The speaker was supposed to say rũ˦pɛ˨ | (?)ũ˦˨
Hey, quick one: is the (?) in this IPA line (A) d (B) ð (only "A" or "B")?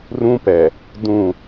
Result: A